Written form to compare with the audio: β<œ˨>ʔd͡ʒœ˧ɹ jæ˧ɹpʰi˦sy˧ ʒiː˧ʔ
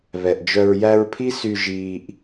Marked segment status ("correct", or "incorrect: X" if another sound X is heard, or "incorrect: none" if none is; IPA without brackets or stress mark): incorrect: ɛ˨